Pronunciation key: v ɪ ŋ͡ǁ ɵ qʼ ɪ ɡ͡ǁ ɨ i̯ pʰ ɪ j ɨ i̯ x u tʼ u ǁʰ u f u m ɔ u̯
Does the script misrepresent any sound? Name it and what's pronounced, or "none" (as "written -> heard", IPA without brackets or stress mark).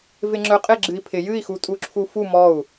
none